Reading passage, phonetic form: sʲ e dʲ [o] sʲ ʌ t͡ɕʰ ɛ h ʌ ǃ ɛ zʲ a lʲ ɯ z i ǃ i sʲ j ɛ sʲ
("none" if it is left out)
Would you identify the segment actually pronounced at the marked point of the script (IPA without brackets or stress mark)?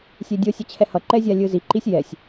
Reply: o